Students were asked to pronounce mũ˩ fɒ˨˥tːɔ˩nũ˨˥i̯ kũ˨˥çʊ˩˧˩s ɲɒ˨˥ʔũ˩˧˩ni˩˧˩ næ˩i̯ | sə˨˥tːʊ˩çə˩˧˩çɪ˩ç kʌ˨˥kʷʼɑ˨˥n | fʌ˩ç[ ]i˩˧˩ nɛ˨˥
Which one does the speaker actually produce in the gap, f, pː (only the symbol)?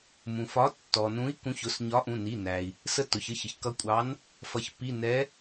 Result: pː